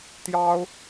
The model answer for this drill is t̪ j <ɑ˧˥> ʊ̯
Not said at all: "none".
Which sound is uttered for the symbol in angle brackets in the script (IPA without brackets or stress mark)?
ɑ˥